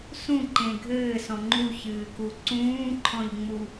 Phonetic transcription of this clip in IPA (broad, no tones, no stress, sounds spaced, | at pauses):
s ũ ǃ ẽ ɡʱ ɘː s ɔ̃ ŋ͡ǃ u ç ɨː k u ǀ ũː ǃʰ ɔ̃ ʎ ŋ͡m u